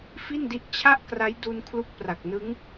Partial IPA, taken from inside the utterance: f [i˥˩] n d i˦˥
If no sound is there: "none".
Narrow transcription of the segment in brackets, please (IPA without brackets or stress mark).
i˥˩